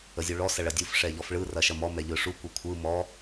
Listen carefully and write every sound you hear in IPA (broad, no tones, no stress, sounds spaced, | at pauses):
ə zʲ u ɭ ɔ s ɐ ɭ ɐ dʲ u f ʂ ɛ ʎ ɔ f ɭ ɯ r ɐ ʃ ɐ m ɔ m ɛ ʎ ɯ ʂ u kʷ ɯ kʷʰ ɯ m ɔ